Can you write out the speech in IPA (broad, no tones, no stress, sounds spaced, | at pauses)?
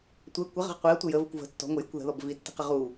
tʷ ɘ kʷ ɪ ʁ ə̤ ʁ qʷ i ɐ̯ tʷ ə j ə v ə kʷ v ə̤ tː ɔ̤ ŋʷ ɘ j ɔ̤ kʷ ð ə̤ ð ɔ b v i tː i̤ q ə ʁ u